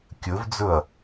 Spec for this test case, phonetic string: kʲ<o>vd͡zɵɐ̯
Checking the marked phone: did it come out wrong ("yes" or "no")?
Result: yes